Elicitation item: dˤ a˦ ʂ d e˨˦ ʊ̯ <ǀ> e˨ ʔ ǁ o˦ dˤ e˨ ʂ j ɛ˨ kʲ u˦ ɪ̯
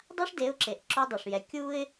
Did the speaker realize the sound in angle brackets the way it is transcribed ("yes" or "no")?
no